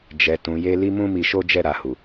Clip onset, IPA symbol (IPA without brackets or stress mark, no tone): d͡ʒ